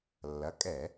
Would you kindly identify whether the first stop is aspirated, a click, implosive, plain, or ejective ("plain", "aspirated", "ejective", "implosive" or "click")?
ejective